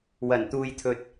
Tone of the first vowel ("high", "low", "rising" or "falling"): low